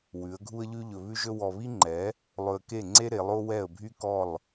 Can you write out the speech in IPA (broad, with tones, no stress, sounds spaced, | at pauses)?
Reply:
w ʉ˨˦ ə̯ ɡʱ u˦ ə̯ ʎ ʉ˦ ʎ ɵ˧ β ʉ˦ ʒ ɵ˦ w ɔ˧ β i˦ ŋ͡ǃ ɛ˨˦ | lˠ ɵ˧ ə̯ k e˦˨ ŋ͡ǀ e˦ ɾ e˨˦ lˠ o˦ w ɛ˦˨ ə̯ bʱ y˦ k ɔ˦˨ lˠ